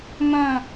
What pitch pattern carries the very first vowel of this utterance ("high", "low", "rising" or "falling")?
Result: falling